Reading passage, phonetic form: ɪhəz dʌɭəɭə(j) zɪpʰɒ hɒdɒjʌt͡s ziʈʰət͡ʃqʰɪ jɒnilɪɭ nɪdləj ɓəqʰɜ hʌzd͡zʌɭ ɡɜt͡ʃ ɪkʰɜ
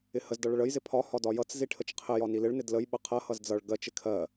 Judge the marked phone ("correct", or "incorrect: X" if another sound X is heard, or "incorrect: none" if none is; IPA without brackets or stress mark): correct